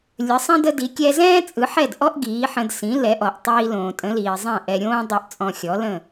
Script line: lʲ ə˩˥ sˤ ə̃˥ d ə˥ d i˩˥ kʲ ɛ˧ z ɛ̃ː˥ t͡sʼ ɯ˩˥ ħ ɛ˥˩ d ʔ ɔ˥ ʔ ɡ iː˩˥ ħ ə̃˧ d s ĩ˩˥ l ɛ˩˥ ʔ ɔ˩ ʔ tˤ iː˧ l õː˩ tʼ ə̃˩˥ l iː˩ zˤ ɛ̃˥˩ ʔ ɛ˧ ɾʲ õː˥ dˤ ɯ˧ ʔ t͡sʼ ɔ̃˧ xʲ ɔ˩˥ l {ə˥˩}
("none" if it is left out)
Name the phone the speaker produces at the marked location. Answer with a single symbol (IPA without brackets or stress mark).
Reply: ə̃˥˩